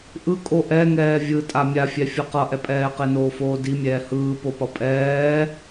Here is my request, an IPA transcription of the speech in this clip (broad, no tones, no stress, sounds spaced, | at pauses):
ʔ ɯ kʼ o ʔ ɛ ŋ ɛː vʲ ɯ tʼ a mʲ a fʲ ɛ fʲ ʌ q ʌ ʔ ɛ pʼ ɛː q e n oː f oː d i mʲ ɛː h ɯː p o p ʌ pʼ ɛː